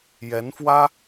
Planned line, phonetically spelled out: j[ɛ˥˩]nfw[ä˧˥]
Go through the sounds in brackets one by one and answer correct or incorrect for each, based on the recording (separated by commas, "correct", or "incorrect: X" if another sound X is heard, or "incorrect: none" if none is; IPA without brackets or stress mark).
incorrect: ɛ˧˥, incorrect: ä˥